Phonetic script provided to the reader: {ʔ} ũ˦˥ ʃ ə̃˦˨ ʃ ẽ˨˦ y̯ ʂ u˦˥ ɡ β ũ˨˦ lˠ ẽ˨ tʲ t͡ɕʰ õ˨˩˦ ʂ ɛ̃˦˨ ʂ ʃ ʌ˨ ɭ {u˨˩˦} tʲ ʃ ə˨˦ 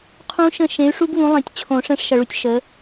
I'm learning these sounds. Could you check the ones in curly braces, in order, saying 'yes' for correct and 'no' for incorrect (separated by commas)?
no, no